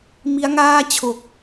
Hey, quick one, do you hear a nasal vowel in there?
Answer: no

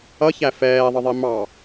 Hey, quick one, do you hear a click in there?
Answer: no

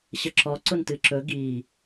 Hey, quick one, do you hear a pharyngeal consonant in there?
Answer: no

